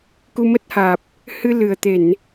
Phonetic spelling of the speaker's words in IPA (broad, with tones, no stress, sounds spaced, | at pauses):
k u˧ m ə˦˥ t̚ h aː˨˩ p̚ | h ɨ˧ l ɨ˨˩ ə̯ t̪ e˧˩˨ n